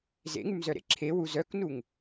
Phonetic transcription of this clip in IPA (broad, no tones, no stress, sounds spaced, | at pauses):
z ḛ ŋ ʉ m z œ ɾ ḛ ǁʰ e w u z œ k n u ŋ